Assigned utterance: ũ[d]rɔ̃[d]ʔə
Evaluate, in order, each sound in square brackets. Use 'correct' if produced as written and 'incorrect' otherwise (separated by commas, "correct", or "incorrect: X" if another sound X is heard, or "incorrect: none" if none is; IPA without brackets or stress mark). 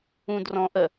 correct, incorrect: none